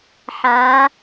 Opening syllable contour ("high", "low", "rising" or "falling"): rising